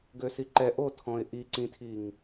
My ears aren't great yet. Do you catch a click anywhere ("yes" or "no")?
yes